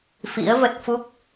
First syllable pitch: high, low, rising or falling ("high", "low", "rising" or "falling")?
rising